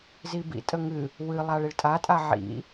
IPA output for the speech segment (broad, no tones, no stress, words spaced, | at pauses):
zibḭ tʼəŋɨ | wɨlˠaɭ iɭtʼatʼa ʕḭ